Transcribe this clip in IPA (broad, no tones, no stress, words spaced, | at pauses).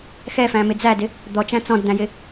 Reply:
xɛfæ̃mɪ d͡zædɪ | d̪ɔt͡ʃæ̃ t͡sɔ̃dd̪æ̃jɪ